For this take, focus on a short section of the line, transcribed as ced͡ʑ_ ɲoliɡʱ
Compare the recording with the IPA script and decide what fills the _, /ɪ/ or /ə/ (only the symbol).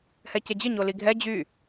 ɪ